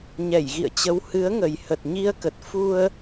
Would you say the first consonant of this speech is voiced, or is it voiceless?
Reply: voiced